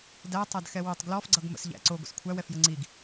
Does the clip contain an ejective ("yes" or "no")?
no